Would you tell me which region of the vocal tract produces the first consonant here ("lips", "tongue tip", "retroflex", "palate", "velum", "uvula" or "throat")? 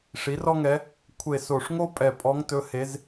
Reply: retroflex